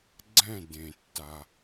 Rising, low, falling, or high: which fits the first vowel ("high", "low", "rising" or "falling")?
falling